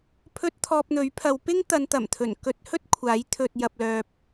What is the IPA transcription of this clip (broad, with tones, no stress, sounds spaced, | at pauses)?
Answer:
pʰ ɵ˧ t̚ t̪ʰ ɔː˧ p̚ n̪ ɵ˨˥ ɥ pʰ ɐ˨˧ w p ɪ˥ ŋ t̪ ɐ˨˧ n t̪ ɐ˨˩ m t̪ʰ ɵ˨˩ n k ɵ˧ t̚ h ɵ˥ t̚ kʷʰ aː˨˥ j t̪ʰ ɵ˨ t̚ j ɐ˨ p̚ l œː˨ p̚